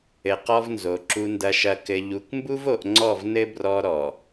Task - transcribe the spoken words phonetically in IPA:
ɘ˨qɔ˦vnzo˨ ǁu˨ndɐ˨ʃɐ˨ kɘ˨ʎu˨kmbu˦vo˨ʔ ŋ͡ǀɔ˦˨vnɘ˦ brɔ˦ɾɔ˨

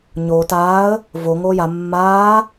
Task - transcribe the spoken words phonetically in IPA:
ɲoːt aːə̯ | vo ŋoːja mːaː

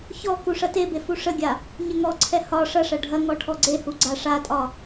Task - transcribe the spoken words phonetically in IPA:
çɔ kuʂɐtebe fuʂəɡʲa | ɲəŋɔǀʰɛ hɒ ʂɐʂɐ ɖʱɐ ŋɔʈʰɔɡ͡ǀehu ɡ͡ǀaʂatʼɒ

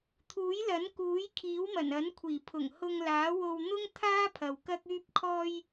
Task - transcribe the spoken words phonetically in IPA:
t̪ʰuː˨˥jlɐ˨˥nkuː˨˥j kʰiː˨˥wmɐ˨˩n ɐ˨˥nkʷʰiː˨˩ pʰʊ˨˩ŋhʊ˧ŋlaː˨˥wo˧w n̪ʊ˥ŋ t̪ʰaː˥pʰɐ˨w kɐ˥k̚yː˥p̚kʰɔː˥j

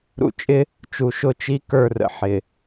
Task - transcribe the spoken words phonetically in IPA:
ɾṵ˨t͡ʃʼɪ˦ | t͡ʃu˨ʃʊ˦˨ t͡ʃi˦kə˞˦˨rə̰˨ħɪ˨

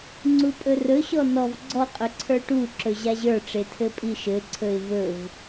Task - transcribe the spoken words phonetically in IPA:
ŋ͡ǀupʼɵrɵɕɔ nɔv ɡ͡ǀɔqʼɵ ǀʰə˞ʈu ǁɵʑaʑə˞ʈ͡ʂe tʰɘpʼiʃɘǀʰɵɪ̯ vɵv

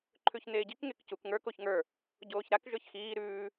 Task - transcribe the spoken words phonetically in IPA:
ǃʰʉçneːɟik ŋekcuk ŋə˞ koçŋə˞ | ɟoːçɾak ʒə˞çxiː ɾʉː

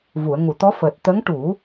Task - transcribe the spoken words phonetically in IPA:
vu˨˩˨ə̯ŋu˨˩˨t̪ɔ˧˥ fəː˨˩t̚t̪ə˧˥ŋʈu˨˩˦

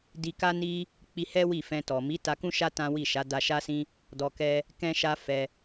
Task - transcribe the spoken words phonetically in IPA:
di˧ka˦ni˦ | k͡pi˧hɛ˦ wi˦˨fɛ̃˧ tɔ˨mi˨˦ ta˧kũ˦ʃa˦ tã˦wi˦˨ ʃa˨˦da˧ʃa˦sĩ˦ | dɔ˧ kɛ˦ | kɛ̃˦ʃa˦fɛ˧

